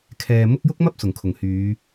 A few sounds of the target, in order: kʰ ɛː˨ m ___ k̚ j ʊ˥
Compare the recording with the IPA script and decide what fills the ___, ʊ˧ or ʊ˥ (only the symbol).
ʊ˥